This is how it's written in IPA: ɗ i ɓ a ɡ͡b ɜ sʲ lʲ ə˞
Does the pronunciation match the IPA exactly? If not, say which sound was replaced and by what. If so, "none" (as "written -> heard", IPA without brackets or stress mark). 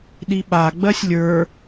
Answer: none